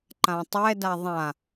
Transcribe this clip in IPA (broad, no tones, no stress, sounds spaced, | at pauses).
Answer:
ǃ ã tˤ ɛ d a ðˤ ã